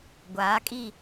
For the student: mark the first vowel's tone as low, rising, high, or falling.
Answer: rising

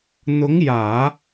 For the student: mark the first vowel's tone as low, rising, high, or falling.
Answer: rising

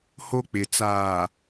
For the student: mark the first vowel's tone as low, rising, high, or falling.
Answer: high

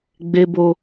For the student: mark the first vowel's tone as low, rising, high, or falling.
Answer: high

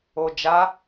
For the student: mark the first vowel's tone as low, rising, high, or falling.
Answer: low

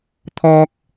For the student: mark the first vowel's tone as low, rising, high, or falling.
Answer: high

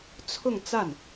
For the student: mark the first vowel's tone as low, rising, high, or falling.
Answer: falling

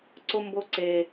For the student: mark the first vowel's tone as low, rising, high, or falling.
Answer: high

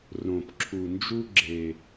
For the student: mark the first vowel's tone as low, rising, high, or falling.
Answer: low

